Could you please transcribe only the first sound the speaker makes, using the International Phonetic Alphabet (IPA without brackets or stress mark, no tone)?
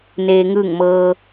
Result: n